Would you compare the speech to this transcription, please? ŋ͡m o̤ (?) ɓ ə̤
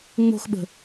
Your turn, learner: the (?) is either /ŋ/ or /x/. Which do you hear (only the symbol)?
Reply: x